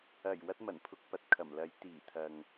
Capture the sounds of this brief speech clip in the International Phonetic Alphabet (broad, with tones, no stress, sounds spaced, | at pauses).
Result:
ɐ˨˩ j w ɐ˥ t̚ m ɐ˨˩ n pʰ ʊ˧ k̚ p ɐ˨ t̚ kʰ ɐ˨˩ m l ɐ˨˥ j t̪ iː˨˩ t̪ʰ ɐ˨ ŋ